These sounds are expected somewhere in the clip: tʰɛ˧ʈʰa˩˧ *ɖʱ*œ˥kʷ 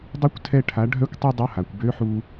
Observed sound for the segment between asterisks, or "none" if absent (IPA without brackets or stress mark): ɖʱ